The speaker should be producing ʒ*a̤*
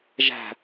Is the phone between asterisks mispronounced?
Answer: yes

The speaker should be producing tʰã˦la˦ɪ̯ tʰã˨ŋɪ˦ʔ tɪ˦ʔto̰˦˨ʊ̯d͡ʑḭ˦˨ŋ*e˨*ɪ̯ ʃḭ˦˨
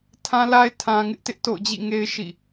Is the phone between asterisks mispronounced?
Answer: yes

